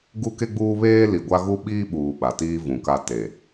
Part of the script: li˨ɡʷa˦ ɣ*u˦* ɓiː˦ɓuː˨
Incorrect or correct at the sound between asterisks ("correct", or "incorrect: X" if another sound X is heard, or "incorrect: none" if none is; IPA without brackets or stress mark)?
correct